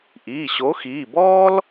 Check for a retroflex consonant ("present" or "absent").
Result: absent